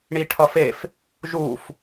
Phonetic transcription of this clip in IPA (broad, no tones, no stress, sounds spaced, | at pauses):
ɳ i ʈʰ ʌ f e f | ʒ u f